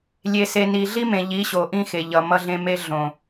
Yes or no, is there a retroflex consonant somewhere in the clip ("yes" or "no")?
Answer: no